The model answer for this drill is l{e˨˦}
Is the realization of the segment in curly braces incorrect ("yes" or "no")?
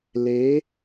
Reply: no